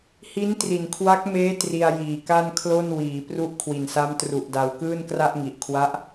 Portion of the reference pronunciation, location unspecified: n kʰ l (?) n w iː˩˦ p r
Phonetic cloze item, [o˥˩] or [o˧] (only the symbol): o˥˩